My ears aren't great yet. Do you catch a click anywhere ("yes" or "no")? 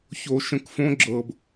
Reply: yes